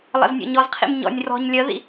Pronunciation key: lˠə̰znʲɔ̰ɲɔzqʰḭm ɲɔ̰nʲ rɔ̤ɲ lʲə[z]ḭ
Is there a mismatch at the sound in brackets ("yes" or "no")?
yes